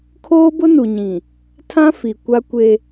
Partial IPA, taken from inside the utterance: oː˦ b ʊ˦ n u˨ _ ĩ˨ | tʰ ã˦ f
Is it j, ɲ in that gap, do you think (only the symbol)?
ɲ